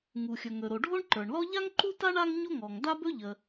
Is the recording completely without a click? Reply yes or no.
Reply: no